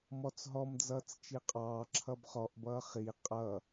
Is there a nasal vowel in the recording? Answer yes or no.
no